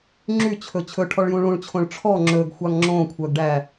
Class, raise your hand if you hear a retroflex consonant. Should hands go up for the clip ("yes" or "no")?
yes